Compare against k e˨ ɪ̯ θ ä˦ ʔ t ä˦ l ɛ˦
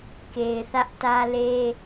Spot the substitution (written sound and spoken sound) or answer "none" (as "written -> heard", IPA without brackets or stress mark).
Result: ɛ˦ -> e˦